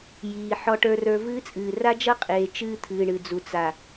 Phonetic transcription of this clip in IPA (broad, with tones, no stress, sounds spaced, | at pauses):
j iː˨ ħ ɔ˨ ʈ ə˞˨ r ə˞˨ v ɨː˦ t͡sʼ ɨː˨ r a˦ d͡ʒ ʌ˦ qʼ eː˨ t͡ʃ ɨː˦ t̪ʰ ɨː˨ ɳ ɨ˨ d͡z u˨ t͡s a˨